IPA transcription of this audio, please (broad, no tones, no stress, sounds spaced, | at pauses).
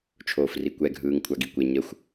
t͡ʃʰ oː f r i kʷ ɛ ɡʱ ɯː ŋ kʷʰ a ɡ i kʷ e ɲ ə xʷ